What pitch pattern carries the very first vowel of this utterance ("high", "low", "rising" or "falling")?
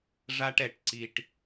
high